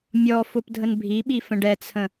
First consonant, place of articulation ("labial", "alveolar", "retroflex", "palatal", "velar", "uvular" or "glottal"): labial